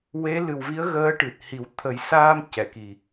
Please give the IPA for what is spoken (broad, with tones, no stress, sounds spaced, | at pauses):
w e˧˥ l ɨ˨˩ w v i˧˥ ə̯ ɣ əː˧˥ ʈ ɨ˨˩ t̚ h i˨˩˦ w t̪ʰ ə˨˩˦ j s aː˧ m c ɛ˨˩˨ k i˨˩